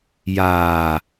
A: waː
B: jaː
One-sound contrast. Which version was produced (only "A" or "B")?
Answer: B